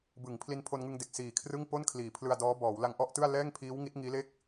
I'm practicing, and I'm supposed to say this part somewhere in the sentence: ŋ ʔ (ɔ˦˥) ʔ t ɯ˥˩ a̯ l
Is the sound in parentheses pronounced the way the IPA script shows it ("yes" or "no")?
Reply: no